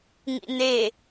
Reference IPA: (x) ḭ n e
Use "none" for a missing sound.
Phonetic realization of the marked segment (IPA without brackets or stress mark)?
ŋ